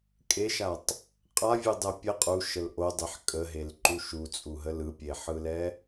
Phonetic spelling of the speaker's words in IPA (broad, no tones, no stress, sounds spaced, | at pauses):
kʼ e ʃ a tˤ | qʼ a vʲ ɯ dˤ ɛ pʲ ə qʼ u ʃ ə l ʔ o dˤ e ħ kʼ ə ɦ e l ǃ u ʃ u t͡sʼ u ɦ ə l ɯ pʲ e ħ ɯ l ɛ